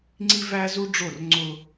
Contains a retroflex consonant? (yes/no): yes